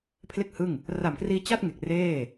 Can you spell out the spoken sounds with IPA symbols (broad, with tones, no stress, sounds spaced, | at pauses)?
pʰ l e˥˩ k̚ h ɯ˥˩ ŋ | r a˨˩ m k r iː˧ t͡ɕ a˥˩ t̚ ŋ e˨˩ k̚ r eː˥˩